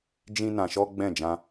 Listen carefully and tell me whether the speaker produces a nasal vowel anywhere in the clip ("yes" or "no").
yes